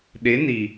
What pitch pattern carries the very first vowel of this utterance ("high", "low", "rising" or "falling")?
rising